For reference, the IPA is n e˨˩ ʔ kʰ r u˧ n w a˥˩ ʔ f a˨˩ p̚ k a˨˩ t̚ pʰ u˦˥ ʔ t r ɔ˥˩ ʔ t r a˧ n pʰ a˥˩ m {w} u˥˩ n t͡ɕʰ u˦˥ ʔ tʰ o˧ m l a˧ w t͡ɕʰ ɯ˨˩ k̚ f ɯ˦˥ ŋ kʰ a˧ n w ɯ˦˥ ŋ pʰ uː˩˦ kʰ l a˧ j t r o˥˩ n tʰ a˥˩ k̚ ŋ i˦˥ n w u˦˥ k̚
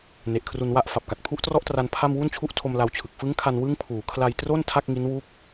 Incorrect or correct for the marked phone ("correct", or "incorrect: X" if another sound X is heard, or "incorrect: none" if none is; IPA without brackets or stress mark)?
correct